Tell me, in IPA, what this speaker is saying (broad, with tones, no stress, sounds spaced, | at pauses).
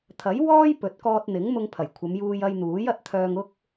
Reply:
t̪ʰ ɐ˨˥ j w ɔː˥ j p ɵ˨˥ t̚ k ɔː˧ t̚ n̪ ɪ˨˥ ŋ m ʊ˧ ŋ pʰ ɐ˨˩ j kʷʰ ɐ˨˧ m j uː˧ j ɐ˧ j n̪ uː˨˥ j ɐ˨ t̚ t̪ʰ œː˧ ŋ ʊ˥ k̚